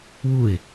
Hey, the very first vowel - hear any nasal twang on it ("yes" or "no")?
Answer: no